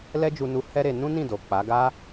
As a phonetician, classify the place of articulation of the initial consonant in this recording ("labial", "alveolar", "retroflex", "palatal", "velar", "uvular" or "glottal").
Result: alveolar